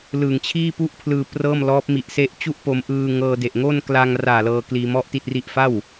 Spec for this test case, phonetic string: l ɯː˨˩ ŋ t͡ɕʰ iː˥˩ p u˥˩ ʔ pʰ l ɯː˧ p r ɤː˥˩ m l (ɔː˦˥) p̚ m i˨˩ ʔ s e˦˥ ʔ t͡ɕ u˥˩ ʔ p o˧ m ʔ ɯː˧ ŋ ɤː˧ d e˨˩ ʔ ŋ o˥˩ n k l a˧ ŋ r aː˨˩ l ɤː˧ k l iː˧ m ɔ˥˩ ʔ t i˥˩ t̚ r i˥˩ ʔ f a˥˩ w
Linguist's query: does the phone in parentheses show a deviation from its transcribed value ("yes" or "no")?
no